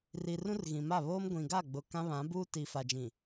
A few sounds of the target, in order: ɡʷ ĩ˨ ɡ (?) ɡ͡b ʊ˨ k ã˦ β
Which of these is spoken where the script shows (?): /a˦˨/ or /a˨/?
a˦˨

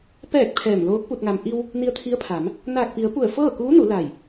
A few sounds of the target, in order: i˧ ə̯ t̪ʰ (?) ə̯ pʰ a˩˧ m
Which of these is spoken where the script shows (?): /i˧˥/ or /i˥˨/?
i˧˥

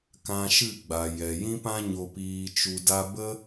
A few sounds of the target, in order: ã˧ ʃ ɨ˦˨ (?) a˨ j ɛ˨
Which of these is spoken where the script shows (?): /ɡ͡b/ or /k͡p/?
ɡ͡b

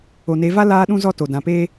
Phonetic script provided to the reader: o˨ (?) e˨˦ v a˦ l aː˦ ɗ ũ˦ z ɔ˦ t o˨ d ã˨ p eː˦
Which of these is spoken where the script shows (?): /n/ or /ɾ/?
n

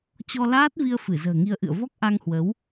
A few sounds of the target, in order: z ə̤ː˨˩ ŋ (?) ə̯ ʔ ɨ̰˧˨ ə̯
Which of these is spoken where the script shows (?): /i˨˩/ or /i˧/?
i˧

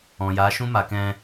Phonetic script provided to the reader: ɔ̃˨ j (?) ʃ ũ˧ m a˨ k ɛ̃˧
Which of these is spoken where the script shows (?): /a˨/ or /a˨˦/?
a˨˦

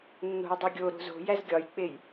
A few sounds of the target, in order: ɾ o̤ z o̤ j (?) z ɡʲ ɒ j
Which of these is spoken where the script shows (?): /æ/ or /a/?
æ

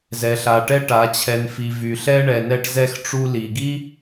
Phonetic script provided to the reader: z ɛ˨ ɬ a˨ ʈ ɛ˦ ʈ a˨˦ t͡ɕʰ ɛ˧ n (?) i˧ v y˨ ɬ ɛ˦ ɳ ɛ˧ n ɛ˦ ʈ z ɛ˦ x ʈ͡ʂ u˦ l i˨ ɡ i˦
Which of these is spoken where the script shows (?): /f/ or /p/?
f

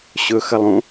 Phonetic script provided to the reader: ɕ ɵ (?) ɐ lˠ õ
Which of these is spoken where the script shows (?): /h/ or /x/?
x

